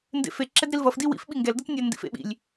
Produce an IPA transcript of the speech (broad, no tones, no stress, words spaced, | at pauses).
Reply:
ndḛfe ǁɛdɾilvʌf diwḭf ɓiŋɡɛl dʌtnʲa ndḭfḛɓḭlʲ